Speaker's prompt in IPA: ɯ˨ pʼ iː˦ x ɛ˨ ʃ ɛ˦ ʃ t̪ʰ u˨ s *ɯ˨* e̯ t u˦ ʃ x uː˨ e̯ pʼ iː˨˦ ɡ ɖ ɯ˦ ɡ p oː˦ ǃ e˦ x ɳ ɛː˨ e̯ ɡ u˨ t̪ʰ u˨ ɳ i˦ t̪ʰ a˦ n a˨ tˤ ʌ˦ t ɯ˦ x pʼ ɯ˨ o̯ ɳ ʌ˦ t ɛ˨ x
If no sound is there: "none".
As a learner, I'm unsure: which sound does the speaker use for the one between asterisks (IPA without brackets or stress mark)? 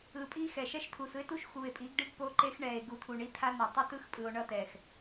ɯ˦